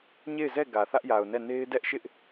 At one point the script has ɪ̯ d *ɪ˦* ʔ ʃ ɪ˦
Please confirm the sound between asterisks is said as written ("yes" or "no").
no